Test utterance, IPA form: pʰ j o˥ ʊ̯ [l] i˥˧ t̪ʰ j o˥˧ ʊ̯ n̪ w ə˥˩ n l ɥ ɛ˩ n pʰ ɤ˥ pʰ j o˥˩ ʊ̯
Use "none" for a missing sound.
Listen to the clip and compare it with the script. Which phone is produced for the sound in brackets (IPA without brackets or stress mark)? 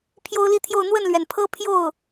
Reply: l